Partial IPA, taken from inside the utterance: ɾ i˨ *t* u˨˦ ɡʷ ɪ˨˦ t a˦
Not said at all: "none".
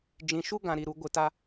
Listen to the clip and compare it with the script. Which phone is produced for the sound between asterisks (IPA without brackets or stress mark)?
ɾ